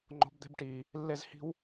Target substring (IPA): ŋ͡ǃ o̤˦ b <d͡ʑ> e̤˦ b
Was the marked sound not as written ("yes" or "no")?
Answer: yes